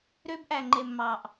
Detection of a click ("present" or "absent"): present